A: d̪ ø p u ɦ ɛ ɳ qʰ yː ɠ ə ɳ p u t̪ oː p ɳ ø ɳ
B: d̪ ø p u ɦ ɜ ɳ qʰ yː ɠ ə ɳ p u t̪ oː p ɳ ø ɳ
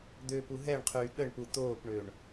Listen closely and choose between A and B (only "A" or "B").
A